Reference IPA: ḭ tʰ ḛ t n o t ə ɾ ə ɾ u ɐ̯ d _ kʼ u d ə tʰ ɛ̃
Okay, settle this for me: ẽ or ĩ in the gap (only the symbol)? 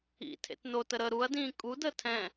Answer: ĩ